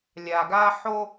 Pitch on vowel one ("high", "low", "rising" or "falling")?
low